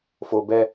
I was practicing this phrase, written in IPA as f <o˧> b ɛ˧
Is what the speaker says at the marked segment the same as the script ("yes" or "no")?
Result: yes